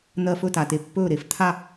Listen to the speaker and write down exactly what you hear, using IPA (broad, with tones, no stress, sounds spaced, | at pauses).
n̪ ɜ˧˩ f ɵ˥˩ t a˩ t e˧˩ pː ɵː˥˩ ɾ e˧˩ f t̪ʰ a˥˩